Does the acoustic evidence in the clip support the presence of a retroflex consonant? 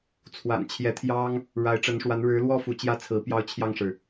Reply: yes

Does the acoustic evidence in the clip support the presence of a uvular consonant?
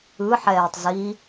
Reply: no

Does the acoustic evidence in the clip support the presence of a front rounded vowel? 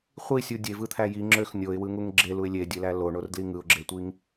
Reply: yes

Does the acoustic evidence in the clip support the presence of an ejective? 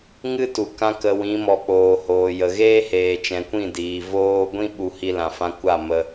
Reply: no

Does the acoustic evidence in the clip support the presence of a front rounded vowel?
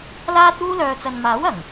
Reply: yes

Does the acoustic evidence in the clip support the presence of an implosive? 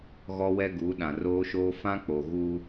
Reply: yes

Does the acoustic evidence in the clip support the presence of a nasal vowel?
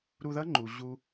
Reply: no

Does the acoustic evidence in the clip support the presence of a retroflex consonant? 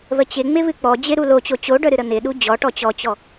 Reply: yes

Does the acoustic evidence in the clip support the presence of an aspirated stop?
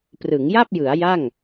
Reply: no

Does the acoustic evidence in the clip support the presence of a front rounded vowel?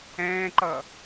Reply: no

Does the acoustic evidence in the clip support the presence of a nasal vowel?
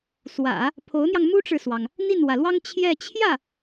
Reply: no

